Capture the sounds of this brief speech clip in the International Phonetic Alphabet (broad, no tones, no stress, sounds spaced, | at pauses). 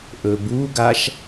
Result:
ʔ ɵ b u ɡ a ʃ